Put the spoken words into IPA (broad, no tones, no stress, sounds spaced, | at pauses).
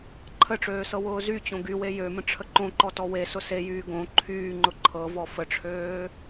ǃʰ ə ʈ͡ʂ øː s ɤ w ʊː z y t͡ɕ õ ɡ y w e j ø m ə̃ ʈ͡ʂʰ ə ǃ õ ǃ ɔ t ɔ w e s ʊ s e j yː ɡ õ ǃʰ yː ŋ͡ǃ ʊ ǃʰ ɤ v ɔ f ə ʈ͡ʂʰ øː